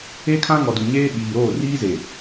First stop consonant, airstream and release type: aspirated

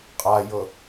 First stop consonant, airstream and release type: ejective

